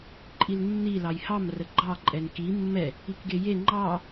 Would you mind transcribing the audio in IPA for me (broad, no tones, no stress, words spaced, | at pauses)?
ǃʼilnːi lɑjhɑm rəɡ͡ǃɑ ǃʼɛnki mːɛ | ikɡeje ŋ͡ǃɑ